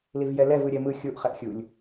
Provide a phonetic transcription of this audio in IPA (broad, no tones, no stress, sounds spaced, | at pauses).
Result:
l i v j ɛ l ɛ v ɯ ɾʲ ɛ m ɯ xʲ u ʔ χ ɛ ʔ xʲ u lʲ